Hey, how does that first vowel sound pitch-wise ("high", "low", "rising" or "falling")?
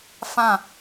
falling